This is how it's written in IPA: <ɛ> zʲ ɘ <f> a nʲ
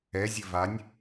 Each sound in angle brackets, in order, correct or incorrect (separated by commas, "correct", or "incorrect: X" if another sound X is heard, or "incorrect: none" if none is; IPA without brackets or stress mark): correct, incorrect: v